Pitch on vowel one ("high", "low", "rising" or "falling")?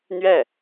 falling